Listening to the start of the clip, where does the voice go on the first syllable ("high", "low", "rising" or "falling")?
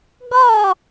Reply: falling